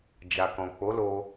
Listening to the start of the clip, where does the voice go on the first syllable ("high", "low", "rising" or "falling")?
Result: low